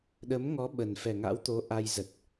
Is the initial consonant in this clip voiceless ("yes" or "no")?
no